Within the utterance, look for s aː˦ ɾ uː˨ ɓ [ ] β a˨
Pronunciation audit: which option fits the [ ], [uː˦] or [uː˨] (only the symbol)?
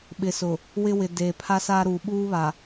uː˦